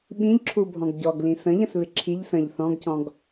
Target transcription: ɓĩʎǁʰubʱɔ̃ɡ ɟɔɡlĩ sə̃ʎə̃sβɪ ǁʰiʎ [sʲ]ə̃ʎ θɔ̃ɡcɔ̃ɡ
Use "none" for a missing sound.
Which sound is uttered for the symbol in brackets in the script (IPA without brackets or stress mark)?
s